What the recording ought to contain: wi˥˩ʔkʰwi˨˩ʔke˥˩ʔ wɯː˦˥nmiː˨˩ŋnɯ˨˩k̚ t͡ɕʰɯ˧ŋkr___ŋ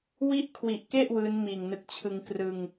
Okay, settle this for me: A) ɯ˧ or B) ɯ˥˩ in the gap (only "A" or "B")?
A